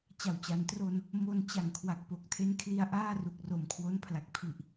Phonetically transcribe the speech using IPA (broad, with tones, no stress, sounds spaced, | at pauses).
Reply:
t͡ɕ a˨˩ w t͡ɕ a˩˦ n t r o˧ n | m o˧ n t͡ɕ a˨˩ ŋ kʰ w a˨˩ k̚ p o˨˩ k̚ tʰ e˦˥ n kʰ l i˧ a̯ ʔ aː˥˩ r u˨˩ k̚ r o˨˩ m kʰ w o˦˥ n pʰ l a˨˩ k̚ pʰ i˨˩ ʔ